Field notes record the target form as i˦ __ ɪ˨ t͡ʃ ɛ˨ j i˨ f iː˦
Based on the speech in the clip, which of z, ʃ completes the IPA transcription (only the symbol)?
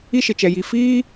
ʃ